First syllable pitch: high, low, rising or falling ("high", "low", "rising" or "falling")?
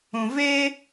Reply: low